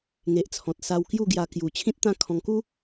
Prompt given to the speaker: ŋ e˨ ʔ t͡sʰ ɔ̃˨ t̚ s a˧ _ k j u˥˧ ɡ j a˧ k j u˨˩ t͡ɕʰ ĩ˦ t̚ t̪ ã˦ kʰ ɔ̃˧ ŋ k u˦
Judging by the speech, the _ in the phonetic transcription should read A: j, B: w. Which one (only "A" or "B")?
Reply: B